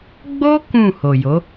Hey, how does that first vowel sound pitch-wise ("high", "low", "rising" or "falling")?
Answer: high